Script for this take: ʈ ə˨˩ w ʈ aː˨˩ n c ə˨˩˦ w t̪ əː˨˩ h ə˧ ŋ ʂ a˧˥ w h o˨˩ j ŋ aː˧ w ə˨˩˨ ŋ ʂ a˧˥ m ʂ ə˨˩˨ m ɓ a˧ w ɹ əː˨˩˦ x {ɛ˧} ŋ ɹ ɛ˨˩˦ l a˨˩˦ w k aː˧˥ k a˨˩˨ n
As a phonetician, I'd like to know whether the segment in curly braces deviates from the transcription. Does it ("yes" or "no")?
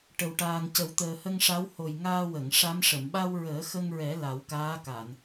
yes